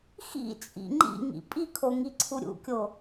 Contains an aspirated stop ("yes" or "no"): yes